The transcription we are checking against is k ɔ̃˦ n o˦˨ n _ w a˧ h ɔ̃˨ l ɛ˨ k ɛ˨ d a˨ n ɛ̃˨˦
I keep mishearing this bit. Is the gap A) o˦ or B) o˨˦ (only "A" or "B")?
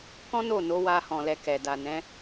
B